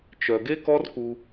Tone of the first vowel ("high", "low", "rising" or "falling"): low